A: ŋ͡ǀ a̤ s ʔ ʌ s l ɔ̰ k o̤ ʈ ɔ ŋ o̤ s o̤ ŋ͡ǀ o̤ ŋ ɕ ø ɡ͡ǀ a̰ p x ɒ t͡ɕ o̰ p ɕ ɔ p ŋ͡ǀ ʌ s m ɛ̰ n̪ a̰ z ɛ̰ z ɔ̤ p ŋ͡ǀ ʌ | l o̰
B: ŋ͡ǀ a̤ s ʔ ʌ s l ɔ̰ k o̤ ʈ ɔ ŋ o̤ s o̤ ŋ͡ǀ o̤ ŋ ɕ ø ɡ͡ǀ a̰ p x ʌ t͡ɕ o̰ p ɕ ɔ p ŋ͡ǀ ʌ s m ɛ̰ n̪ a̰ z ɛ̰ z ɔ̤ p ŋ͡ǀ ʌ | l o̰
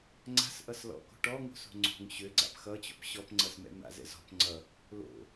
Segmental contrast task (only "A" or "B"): B